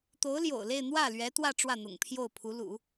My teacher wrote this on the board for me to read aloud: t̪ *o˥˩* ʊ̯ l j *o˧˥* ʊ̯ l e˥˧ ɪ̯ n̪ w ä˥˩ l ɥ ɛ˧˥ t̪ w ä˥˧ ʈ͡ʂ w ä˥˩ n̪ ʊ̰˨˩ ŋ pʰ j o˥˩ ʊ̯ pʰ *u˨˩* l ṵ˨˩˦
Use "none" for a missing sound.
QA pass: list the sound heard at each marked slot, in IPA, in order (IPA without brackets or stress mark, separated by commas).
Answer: o˧˥, o̰˨˩, u˧˥